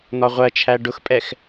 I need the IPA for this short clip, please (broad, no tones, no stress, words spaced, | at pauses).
n̪ɒʁʷɜt͡ʃʰæ ɖʊxpʼɛx